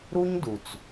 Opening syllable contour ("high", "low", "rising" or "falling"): high